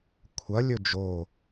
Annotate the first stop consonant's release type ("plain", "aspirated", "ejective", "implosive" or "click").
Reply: aspirated